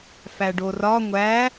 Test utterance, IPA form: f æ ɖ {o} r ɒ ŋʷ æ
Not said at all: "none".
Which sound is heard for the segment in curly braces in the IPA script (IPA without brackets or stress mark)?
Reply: o